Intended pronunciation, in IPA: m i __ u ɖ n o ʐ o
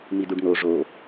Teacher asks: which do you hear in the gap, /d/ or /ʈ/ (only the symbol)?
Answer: d